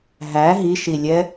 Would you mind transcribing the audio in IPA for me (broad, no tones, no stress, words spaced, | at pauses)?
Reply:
ɦæ ɦiʃilʲɛ